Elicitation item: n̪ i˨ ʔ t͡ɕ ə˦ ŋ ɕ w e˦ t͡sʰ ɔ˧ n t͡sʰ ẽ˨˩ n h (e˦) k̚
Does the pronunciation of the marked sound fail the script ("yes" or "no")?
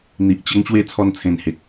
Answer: yes